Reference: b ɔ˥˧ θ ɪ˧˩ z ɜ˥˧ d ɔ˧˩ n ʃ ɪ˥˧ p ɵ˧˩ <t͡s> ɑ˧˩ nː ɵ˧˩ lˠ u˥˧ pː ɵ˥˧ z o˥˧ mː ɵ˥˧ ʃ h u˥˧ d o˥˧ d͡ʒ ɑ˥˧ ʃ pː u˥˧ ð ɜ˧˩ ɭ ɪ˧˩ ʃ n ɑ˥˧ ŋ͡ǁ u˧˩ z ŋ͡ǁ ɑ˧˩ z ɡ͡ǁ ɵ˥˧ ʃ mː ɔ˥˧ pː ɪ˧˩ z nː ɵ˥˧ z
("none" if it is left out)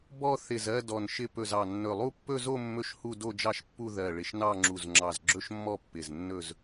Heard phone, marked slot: z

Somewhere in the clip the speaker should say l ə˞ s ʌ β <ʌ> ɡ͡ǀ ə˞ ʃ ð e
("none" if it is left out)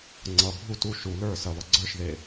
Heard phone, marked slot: ʌ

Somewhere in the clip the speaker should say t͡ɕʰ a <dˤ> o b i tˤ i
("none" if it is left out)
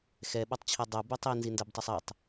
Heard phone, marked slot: dˤ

